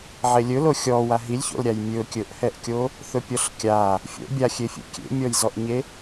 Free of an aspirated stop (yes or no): yes